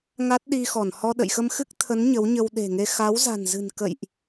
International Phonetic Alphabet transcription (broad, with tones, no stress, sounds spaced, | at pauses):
ŋ a˦˥ t̚ ɗ i˧ x ɔ˧˩ n h ɔ˧ ɗ ə̰˧˨ j x ə˧ m x ɨ˦˥ k̚ t̪ʰ ə˨˦ n ɲ ə˨˦ w ɲ ə˧ w ɗ e̤˨˩ ŋ e˧ x a˨˦ w z a̤˨˩ n z ɨ̤˨˩ n k ə̰˧˨ j ʔ